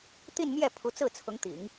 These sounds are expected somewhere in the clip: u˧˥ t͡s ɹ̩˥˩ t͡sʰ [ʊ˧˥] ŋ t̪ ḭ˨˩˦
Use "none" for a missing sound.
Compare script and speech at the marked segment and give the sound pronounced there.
ʊ˧˥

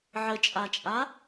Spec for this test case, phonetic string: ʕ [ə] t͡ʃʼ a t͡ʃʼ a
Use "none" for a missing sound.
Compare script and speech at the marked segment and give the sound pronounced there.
ə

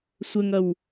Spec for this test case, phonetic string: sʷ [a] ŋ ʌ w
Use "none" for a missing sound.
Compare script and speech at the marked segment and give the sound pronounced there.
ə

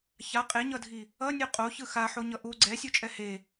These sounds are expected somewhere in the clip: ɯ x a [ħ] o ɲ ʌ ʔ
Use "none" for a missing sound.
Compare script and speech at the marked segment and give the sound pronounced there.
ħ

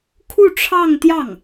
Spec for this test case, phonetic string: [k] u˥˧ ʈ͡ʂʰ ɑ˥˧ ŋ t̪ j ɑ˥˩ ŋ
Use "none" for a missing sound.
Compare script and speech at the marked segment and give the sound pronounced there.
kʰ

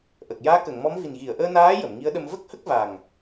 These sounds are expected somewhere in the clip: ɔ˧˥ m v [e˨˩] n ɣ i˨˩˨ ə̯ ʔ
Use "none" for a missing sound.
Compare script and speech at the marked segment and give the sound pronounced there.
i˨˩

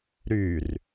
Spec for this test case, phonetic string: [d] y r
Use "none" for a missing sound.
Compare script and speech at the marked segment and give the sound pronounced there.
ɾ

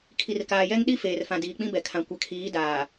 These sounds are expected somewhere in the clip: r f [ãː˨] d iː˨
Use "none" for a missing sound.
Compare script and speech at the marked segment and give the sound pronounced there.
ã˨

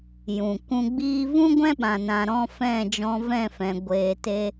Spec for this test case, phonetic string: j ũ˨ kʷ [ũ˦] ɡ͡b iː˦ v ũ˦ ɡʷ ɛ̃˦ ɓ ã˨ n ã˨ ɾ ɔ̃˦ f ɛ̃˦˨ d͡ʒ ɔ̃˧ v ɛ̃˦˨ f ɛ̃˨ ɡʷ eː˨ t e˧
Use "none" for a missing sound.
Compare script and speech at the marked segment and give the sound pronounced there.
ũ˧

